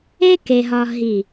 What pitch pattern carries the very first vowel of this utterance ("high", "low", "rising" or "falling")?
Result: high